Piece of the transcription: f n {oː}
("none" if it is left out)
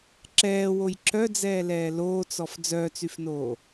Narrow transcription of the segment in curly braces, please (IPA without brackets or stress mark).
oː